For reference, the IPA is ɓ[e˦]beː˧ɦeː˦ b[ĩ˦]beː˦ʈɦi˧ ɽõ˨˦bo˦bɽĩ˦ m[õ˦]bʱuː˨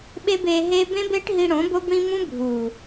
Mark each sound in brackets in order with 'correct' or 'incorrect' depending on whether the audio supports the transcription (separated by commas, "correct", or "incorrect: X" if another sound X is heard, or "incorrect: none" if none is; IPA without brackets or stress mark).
correct, incorrect: ẽ˦, incorrect: ũ˦